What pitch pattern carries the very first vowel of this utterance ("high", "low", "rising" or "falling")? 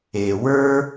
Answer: low